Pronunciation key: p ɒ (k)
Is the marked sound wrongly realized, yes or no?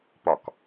no